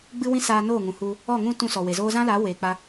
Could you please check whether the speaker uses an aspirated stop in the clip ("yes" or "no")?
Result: no